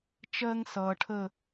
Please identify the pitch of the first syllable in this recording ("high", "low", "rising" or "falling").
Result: high